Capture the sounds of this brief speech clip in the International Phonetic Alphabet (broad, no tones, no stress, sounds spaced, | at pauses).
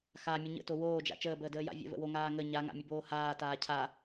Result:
x a mʲ ʊ ɲ ə̰ t o w oː d͡ʒ a̰ t͡ʃ əː b əː d əː j a̰ vʲ ə̰ v ə̰ w o ŋ aː ŋ ə ɲ a ŋ a̰ mʲ ə b oː h aː t aː cʰ a